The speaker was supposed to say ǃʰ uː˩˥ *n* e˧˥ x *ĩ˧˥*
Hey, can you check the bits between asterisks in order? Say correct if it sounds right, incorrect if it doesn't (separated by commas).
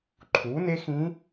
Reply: correct, correct